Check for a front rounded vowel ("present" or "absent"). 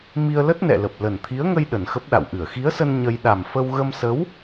absent